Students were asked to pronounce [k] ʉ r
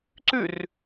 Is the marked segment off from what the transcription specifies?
yes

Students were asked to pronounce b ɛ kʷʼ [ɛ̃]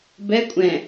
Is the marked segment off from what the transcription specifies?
no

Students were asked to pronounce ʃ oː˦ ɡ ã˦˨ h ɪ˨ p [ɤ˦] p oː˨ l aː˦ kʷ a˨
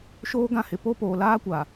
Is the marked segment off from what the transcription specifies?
yes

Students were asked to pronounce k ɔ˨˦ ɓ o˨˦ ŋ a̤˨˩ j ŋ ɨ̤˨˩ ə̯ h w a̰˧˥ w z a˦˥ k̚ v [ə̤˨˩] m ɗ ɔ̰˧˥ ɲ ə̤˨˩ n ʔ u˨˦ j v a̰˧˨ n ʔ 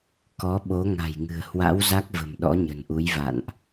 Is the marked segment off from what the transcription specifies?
no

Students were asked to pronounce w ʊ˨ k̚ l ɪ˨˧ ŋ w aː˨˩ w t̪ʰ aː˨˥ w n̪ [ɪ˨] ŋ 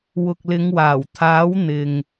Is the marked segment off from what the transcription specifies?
no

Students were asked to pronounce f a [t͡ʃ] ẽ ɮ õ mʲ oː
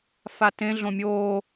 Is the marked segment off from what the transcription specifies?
yes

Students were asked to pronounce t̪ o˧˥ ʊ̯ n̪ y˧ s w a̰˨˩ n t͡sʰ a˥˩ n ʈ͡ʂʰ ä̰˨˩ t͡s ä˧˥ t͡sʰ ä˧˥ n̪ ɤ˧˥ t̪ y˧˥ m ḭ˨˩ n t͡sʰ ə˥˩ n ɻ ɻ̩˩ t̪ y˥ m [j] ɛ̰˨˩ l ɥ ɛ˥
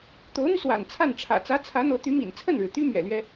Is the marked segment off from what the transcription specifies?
yes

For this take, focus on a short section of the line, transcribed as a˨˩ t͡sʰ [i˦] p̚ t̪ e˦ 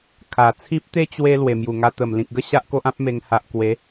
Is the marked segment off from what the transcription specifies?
no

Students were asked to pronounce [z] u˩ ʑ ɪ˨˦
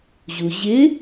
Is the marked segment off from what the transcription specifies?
yes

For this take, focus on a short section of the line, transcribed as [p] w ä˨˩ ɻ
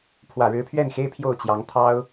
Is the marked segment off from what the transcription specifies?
yes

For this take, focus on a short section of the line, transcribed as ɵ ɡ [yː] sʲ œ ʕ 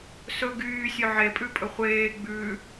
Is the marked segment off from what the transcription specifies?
no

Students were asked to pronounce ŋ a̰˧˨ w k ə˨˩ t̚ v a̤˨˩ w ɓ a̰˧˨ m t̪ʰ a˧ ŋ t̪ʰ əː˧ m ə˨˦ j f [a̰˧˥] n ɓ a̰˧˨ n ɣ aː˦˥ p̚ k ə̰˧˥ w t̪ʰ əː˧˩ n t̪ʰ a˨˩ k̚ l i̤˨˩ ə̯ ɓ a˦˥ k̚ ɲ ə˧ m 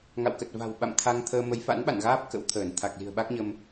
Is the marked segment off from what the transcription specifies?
no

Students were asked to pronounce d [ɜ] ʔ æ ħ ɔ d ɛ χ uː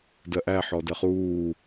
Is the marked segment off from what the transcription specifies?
no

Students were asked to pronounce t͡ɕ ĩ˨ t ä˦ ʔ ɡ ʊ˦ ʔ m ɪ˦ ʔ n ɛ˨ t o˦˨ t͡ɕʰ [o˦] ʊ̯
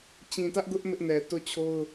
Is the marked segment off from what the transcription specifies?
no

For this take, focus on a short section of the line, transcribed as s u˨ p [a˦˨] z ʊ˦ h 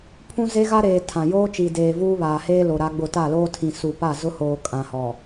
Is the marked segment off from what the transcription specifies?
no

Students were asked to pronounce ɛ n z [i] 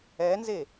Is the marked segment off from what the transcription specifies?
yes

